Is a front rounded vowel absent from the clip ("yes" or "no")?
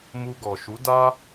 yes